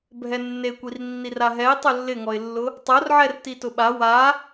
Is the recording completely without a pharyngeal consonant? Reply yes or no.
no